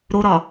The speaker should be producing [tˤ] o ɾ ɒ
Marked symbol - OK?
no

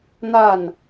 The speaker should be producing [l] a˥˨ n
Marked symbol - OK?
no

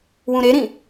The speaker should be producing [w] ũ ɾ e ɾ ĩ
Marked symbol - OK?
yes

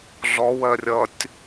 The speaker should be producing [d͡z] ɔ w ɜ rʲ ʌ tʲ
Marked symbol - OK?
no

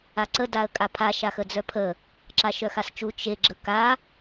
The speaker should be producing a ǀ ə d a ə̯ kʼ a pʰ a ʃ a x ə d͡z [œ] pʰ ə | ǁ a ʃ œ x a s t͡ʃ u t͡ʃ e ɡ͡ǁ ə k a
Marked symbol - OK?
yes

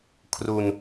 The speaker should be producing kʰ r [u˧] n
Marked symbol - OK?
yes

